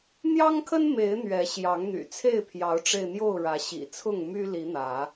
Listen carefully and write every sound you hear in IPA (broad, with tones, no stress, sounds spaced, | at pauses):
n̪ j ɑ˦ ŋ kʰ ə˦ n m e˨˦ ɪ̯ n̪ ɥ ɛ˨˦ ɕ j ɑ˨˦ ŋ n̪ y̰˨˩ t͡sʰ e˥˨ ɪ̯ pʰ j ɑ˨˦ ʊ̯ ʈ͡ʂ e˧ ɪ̯ n̪ j o˥˨ ʊ̯ ɻ ä˨˦ ɕ ḭ˨˩ t͡sʰ ʊ˥˨ ŋ m y˦ l i˨˦ n̪ ä˨˦